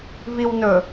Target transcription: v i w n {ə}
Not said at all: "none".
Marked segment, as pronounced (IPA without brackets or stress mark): ɵ